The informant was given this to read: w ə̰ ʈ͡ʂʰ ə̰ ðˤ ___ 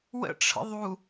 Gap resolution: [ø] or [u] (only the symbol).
u